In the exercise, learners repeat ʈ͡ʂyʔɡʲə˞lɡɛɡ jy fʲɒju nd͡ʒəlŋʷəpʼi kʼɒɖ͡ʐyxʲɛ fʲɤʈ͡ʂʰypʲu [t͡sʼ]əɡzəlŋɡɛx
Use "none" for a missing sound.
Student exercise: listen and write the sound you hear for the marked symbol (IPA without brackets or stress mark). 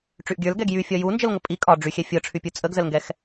t͡sʼ